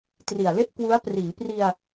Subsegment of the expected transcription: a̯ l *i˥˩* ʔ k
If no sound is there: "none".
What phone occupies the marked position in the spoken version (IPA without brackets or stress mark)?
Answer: e˥˩